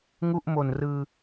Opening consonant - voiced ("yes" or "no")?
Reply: yes